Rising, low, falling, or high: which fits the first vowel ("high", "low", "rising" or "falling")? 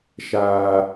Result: high